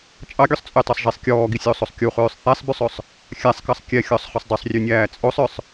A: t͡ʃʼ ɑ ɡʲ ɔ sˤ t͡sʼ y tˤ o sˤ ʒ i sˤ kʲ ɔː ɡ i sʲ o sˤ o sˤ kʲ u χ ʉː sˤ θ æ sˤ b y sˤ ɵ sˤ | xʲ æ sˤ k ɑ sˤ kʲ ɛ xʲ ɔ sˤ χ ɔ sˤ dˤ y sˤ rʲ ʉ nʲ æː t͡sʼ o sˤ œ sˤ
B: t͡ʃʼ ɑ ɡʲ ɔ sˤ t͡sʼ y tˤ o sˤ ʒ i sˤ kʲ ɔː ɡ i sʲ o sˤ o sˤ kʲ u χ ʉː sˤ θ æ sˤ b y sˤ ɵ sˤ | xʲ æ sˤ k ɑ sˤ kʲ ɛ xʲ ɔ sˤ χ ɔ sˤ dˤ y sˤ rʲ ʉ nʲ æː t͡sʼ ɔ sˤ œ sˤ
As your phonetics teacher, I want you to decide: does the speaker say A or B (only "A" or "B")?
A